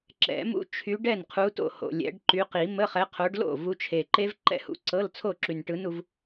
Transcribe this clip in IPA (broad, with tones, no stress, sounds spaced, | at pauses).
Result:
ǁ ɛ̰˨˩˦ m ṵ˦˥ t͡ʃʰ y˨˦ ɖ ɛ˥˩ n qʰ u˨˦ t o̰˥˩ h o̰˨˩ lʲ ɛ̰˨˩˦ ɖ ǃ y˨˦ q i˨˩˦ m ə˧˥˧ χ ɛ˨˦ qʰ o˨˦ ɖ l o̰˥˩ v u˨˦ t͡ʃʰ e˨˩ ǃ e˦˥ v ǃ ɛ̰˦˥ h ṵ˨˦ ǀ ɤ˧˥˧ l t͡sʰ o˥˩ ǁ y˨˩ n ʈ ɯ˨˦ n u˨˩˦ v